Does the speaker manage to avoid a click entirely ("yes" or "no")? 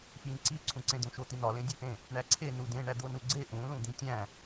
no